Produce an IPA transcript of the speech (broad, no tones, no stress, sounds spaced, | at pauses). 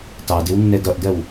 t ɑ d ɪ w nː ɛ d ʌ ʔ d ɜ w